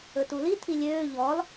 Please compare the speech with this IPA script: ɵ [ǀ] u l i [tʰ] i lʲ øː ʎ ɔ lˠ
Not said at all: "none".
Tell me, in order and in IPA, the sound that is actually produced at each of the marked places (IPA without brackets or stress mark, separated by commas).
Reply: t, tʰ